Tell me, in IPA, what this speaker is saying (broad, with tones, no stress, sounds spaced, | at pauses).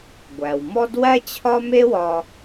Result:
ɡʷ æ˩ w m ɔ˥ d w æ˥ t͡ɕʰ ɒ˥ m e˥ w ɒ˧